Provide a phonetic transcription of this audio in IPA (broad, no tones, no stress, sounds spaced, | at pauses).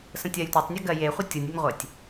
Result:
s ə̃ tʲ ɜ j tʷ a tˤ nʲ ɛ ɡ ɜ j e χʷ ə tʲ u nʲ ʉ nʲ ʁʷ e tʲ